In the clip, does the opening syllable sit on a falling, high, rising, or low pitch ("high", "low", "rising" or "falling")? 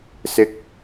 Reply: high